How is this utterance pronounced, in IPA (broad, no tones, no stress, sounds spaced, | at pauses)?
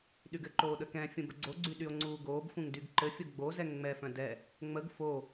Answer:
ɗ y ɡ ɘ ǃ oː ɗ ə k ɛ̃ fʲ ũ b ə ɡ͡ǀ o ɡ͡ǀ y ɗ y o̯ ŋ͡ǀ uː ɡ oː b f ũ ŋ d y ɡ ǃ ɘ fʲ o ɡ͡b o z ɛ ŋ ŋ͡m ɛ f œ̃ d ɛ | ŋ͡m ə ɡ f o